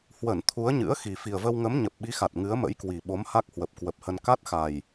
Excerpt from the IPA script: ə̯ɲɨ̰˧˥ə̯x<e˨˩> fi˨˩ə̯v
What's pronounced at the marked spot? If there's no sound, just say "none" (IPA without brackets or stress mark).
i˨˩